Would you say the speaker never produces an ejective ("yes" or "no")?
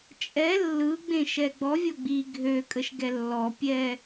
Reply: no